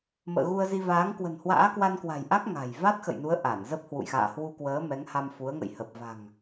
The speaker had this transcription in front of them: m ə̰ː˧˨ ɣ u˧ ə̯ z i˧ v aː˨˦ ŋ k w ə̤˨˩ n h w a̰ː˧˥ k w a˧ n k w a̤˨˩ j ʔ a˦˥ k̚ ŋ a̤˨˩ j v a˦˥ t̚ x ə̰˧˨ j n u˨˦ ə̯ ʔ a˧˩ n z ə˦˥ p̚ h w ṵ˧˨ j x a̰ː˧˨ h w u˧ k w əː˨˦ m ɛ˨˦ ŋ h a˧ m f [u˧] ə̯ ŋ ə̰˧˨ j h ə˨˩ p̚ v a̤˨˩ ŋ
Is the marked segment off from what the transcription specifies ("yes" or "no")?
yes